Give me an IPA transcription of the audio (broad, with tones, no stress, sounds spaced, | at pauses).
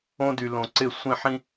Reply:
õ˦ d y˨ l õ˨ ǀ ɪ˦˨ sʷ ĩ˦˨ ħ ĩ˦